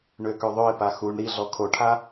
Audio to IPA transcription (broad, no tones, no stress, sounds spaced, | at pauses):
ɳ ø k ø ðˤ ø ɪ̯ p a x u ɳ ɾ i ɮ ɔ kʰ o ʈʰ a